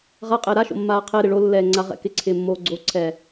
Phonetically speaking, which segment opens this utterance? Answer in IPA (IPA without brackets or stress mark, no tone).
ʁ